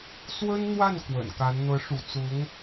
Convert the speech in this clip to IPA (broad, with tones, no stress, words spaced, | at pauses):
swə˥nn̪wa˥˩n kwə̰˨˩nka˧˥n n̪ɤ˧˥ʂṵ˨˩t͡sʊ˧˥ŋ